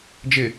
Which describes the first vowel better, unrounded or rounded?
unrounded